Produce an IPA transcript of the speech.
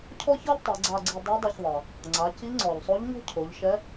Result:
cʰ ɔ˥ ç ɤ˥ ʎ tˤ ɛ˩˧ ɡ͡ǀ a˧ ɡ͡ǀ i˧ dˤ i˧˥ dˤ ɤ˧ ç ðˤ ɤ˩ | ŋ͡ǀ a˩˧ c i˧˥ ŋ͡ǀ ɔ˩ ʎ sˤ o˧˥ ʎ ɲ ɔ̤˥ cʰ o˩˧ ʎ ʃ ɛ˧˥

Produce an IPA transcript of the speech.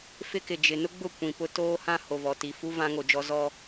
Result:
f ɪ˦ k ɪ˨ d͡ʒ ɪ˨ n ʊ˦ ɡ͡b ʊ˦˨ kʷ ĩ˨ p ʊ˦ t oː˦ h ã˦ h o˨ v ɔ˨ t i˨ f u˦ v ã˦ ŋ o˨ d͡ʒ ɔ˦ z ɔ˦

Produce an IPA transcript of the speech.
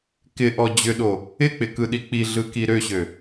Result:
k ɪ ʔ ɔ d͡ʑ ʏ ɗ o | ɪ k͡p ɪ k ɯ ɗ i k͡p i ɮ ɯ k i ɾ ø ɕ ø

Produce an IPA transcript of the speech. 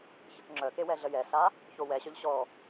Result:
ç ə k ŋ͡ǁ œ k e w ɛ ɮ ə j ɛ s a | ç o w ɛ ɕ œ ʎ ɕ ɔ

